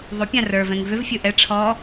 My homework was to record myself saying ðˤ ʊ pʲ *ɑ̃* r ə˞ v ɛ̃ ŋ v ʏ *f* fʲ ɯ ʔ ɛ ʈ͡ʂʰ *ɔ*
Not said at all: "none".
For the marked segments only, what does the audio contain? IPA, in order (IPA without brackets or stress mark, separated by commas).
ã, v, ɔ